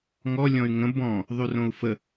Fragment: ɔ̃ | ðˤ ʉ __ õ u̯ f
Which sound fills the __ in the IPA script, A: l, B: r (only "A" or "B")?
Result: B